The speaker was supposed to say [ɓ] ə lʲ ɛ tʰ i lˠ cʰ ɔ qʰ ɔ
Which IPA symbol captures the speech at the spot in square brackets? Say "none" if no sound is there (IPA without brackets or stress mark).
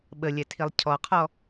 ɓ